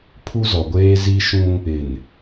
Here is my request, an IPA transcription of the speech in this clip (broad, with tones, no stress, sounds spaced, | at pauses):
pʰ u˦ z ɔ˨ ɡʷ eː˦ z i˦ ʃ ũ˦ | ɪ˨ n